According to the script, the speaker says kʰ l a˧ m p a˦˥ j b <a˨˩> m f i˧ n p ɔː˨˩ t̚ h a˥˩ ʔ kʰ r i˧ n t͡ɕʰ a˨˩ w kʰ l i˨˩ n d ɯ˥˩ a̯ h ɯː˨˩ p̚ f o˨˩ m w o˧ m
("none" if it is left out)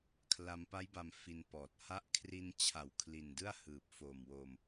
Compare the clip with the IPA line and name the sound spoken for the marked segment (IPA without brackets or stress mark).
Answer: a˧